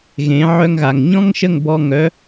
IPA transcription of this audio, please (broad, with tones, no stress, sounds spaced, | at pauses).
ɣ ẽ˨˦ ʕ œ˧ ŋ ɣ a˨ ŋ ɲ ɔ̃˦ ŋ ʃ ə˦˨ ŋ b ɔ˧ ŋ œ˨˦